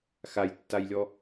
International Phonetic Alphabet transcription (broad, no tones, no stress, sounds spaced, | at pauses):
x a j tː a j lʲ ɔ